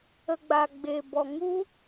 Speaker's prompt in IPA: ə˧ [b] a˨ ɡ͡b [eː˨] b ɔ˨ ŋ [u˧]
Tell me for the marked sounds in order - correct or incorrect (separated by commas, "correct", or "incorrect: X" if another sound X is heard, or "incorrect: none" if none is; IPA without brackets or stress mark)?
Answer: incorrect: ɡ͡b, correct, incorrect: u˦